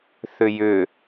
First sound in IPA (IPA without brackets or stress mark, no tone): θ